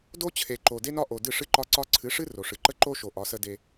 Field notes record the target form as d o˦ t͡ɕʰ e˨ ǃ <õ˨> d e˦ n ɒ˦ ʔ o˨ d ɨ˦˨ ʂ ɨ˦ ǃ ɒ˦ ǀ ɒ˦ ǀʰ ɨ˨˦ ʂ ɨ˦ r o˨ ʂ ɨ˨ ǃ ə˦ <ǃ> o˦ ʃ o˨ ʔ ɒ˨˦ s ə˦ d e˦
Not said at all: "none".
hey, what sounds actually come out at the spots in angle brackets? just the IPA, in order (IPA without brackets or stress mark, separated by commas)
o˨, ǃ